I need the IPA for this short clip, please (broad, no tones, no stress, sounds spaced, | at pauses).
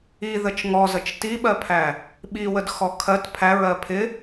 i ð ə t͡ʃ ŋ ɔ z ə t͡ʃ t i ɓ ɜ pʰ æ | ɓ i w ə d x ɔ kʰ ɜ t pʰ æ ɹ ɜ pʰ ɪ